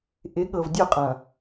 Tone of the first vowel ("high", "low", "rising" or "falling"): rising